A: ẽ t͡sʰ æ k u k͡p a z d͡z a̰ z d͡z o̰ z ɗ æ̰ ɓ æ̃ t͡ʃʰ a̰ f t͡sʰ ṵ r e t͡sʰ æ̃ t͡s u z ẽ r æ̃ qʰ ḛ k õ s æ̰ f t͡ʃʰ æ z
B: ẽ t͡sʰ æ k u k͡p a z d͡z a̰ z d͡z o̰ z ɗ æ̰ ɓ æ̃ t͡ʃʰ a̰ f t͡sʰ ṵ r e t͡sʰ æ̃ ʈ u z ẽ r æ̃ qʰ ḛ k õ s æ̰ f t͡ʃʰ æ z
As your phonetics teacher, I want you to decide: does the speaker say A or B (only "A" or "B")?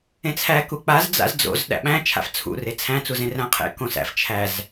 A